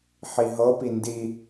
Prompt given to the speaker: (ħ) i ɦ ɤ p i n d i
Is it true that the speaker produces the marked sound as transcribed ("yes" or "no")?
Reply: yes